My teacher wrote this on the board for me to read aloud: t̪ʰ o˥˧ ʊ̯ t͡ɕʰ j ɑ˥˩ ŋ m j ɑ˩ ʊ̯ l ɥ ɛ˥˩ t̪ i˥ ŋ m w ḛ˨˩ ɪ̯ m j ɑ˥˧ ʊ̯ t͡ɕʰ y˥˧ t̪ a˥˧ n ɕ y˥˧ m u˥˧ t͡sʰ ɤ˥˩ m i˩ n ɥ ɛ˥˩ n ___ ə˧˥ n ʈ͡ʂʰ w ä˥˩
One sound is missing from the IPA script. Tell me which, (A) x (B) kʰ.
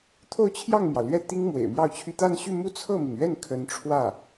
B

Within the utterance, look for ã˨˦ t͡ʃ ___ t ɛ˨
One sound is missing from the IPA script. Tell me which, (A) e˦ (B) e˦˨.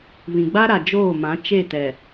B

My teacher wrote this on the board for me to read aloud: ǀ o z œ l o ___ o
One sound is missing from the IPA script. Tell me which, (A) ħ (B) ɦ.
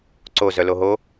B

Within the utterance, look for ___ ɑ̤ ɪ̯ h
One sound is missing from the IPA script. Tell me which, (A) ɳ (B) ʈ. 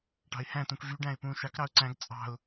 B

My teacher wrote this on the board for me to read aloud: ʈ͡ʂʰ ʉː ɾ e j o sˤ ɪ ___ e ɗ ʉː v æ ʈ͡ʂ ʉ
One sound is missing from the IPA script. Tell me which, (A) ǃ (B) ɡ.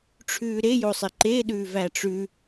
A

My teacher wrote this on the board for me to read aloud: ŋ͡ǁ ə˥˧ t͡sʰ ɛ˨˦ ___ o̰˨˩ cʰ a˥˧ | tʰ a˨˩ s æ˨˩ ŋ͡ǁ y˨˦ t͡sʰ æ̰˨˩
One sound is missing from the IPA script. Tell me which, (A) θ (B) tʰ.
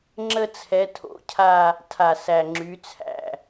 B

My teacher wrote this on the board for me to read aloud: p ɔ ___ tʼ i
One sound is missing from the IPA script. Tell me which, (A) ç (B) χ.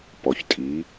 A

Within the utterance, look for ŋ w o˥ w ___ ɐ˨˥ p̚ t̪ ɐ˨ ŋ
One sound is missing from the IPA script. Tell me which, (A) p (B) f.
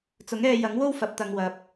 B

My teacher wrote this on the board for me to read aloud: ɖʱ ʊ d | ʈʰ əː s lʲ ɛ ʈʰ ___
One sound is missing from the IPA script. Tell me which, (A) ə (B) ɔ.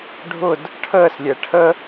A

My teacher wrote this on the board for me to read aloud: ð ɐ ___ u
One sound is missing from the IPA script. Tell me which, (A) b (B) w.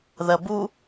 A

